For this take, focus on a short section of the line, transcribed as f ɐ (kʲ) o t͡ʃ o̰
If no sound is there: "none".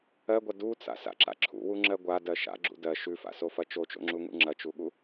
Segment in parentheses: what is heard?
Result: t͡ʃ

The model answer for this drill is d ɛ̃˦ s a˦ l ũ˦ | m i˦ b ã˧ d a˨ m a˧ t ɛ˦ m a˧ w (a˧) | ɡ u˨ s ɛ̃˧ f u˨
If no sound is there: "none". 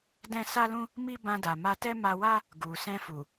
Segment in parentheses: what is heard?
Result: a˦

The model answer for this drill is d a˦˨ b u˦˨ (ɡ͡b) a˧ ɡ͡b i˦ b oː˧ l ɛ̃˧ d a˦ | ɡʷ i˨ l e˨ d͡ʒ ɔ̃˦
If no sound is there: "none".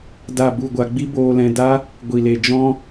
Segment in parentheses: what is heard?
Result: ɡʷ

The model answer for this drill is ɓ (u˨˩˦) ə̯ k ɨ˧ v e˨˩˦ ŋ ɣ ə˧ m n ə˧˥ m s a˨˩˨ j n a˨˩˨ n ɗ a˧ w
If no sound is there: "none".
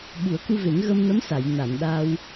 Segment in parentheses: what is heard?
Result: u˨˩˦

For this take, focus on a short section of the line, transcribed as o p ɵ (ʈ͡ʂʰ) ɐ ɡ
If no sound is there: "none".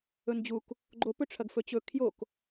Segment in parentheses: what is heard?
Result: ʈ͡ʂʰ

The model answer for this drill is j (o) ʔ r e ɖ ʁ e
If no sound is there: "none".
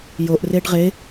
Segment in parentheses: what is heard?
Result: o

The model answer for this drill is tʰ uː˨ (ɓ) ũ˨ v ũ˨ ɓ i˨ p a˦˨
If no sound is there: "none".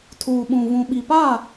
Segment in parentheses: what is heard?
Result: ɓ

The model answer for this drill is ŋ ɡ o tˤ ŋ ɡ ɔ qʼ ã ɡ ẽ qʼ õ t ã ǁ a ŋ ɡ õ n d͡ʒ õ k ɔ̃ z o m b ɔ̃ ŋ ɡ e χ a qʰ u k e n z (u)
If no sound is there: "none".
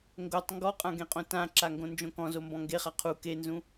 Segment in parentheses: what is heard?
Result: ũ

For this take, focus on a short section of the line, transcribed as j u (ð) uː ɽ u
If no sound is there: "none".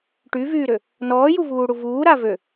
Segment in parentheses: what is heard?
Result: v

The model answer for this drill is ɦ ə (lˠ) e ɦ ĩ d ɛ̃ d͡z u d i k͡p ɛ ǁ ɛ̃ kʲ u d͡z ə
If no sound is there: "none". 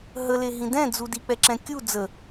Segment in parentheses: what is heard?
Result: l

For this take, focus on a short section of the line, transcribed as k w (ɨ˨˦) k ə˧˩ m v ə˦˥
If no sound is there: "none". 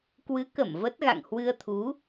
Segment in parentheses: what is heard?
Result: ɨ˨˦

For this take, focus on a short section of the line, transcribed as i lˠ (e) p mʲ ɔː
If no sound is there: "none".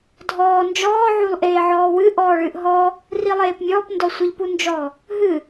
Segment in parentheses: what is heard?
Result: eː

